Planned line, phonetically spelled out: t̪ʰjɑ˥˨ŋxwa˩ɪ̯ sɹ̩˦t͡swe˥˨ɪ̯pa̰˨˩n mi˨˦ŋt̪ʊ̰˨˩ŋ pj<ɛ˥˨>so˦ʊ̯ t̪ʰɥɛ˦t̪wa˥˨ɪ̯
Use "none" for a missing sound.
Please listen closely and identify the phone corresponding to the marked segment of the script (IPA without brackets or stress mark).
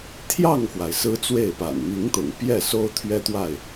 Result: ɛ˥˨